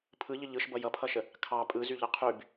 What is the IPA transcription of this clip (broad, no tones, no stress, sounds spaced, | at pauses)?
pʰ ɯ ʎ ə ʎ ɯ ʃ b ʌ j ʌ pʰ ʌ ʃ ə | kʰ ɑ pʼ ɯ z y ʎ ʌ qʰ y b